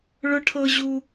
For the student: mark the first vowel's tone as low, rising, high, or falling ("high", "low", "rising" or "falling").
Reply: high